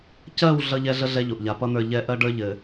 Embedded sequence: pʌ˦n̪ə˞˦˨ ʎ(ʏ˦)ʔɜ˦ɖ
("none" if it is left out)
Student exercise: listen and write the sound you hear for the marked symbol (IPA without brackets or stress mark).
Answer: ɛ˦